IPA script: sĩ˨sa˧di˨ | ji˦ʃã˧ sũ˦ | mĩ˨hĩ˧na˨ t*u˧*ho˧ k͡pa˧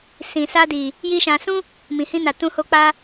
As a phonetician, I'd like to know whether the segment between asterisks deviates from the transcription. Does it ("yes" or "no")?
yes